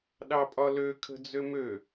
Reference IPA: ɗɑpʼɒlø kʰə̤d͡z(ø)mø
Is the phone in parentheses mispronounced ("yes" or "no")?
no